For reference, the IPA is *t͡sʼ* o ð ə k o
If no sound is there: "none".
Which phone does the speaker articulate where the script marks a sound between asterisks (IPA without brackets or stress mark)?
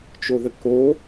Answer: t͡ʃ